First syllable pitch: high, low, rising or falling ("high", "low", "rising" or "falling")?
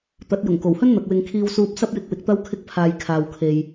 rising